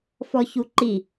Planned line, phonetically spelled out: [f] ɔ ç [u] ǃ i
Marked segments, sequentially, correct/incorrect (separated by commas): correct, correct